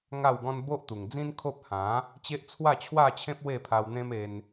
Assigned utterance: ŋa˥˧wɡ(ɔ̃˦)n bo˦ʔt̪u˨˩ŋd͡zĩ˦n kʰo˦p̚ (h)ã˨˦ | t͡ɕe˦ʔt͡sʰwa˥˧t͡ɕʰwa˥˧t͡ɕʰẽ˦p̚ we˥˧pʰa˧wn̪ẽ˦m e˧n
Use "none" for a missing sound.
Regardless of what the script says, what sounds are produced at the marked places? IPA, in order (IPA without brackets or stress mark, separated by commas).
ɔ̃˦, h